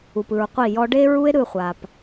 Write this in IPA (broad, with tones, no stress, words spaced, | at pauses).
u˨pɯ˨ɹqʷi˦˨jɔ˦ ɖe˦ɹu˦e̯ ɾɯ˦˨χʷa˨p